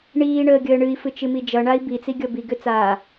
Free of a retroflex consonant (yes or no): no